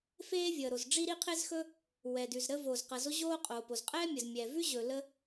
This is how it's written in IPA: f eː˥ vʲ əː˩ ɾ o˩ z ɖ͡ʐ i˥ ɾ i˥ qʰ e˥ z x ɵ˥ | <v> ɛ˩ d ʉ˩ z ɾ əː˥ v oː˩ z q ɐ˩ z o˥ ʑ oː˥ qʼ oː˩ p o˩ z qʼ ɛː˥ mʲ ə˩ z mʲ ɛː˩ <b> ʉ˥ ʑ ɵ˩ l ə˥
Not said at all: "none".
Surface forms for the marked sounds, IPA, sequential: w, v

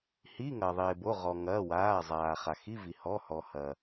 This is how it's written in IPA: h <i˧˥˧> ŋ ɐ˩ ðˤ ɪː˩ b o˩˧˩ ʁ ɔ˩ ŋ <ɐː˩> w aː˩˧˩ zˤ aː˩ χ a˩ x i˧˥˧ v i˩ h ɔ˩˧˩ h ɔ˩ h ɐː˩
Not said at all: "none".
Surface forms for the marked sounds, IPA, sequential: i˧˥˧, ɐː˩˧˩

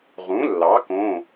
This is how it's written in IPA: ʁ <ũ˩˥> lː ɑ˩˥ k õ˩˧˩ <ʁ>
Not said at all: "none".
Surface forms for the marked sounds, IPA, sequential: ũ˩˥, none

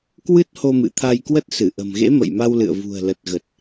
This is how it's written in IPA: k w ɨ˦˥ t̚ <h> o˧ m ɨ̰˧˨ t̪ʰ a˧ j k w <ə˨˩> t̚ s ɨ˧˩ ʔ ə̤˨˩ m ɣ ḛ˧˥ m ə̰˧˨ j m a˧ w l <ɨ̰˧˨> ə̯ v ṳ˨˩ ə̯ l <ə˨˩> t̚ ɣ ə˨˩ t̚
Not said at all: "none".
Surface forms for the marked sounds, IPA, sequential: h, ə˦˥, ɨ̰˧˨, ə˨˩

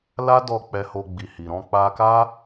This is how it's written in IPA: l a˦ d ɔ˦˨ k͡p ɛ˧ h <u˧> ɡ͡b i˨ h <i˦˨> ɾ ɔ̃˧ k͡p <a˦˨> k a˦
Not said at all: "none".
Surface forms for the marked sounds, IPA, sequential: o˧, i˨, a˧

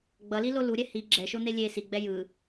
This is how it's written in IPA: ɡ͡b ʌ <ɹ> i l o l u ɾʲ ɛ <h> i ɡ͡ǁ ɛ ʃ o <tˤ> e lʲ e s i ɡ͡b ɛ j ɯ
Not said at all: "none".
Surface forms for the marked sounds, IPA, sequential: l, h, n̪

